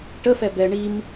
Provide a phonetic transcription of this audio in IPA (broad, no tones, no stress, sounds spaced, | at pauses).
ʈ ə f ɛ b ɛ ɳ i m